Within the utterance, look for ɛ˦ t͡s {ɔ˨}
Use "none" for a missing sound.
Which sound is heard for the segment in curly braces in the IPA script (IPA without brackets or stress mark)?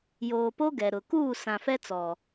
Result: ɔ˨